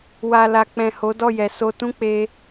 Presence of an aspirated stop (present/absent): absent